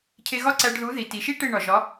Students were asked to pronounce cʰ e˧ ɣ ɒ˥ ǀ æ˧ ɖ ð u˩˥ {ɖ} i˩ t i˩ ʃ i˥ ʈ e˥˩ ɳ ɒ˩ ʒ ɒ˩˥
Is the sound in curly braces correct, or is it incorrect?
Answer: incorrect: ð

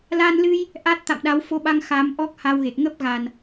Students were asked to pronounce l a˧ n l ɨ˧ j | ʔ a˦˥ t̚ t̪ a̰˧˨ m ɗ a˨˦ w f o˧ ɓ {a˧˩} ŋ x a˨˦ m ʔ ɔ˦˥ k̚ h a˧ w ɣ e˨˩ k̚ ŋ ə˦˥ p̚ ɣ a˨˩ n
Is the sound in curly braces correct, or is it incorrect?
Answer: incorrect: a˧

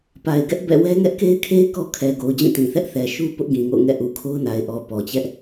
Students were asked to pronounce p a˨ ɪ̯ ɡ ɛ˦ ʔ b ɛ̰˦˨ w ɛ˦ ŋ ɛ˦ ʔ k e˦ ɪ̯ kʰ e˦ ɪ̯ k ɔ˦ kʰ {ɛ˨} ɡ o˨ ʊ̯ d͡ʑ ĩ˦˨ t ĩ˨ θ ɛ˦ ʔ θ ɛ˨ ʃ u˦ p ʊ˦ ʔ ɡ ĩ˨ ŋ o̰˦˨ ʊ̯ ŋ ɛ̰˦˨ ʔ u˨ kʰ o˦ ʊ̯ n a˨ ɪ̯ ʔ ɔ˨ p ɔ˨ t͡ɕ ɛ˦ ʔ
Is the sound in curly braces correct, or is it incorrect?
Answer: correct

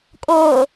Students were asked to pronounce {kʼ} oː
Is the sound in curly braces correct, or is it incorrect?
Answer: correct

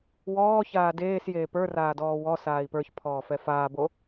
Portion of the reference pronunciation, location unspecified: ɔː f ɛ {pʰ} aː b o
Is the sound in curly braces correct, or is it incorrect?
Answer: incorrect: f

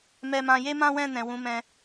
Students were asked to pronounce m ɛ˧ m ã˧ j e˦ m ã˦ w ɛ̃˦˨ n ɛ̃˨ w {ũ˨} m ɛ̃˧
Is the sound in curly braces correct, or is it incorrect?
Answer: incorrect: ũ˨˦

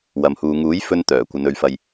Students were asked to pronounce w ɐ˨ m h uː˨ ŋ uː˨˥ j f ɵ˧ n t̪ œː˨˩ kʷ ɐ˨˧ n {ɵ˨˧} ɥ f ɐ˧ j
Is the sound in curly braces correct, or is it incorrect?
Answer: correct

